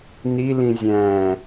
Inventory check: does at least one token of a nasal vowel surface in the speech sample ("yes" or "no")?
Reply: yes